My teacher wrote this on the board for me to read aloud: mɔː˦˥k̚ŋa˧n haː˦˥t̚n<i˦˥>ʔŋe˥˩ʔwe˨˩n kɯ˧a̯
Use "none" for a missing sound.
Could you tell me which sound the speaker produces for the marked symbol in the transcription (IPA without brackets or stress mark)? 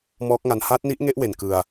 i˦˥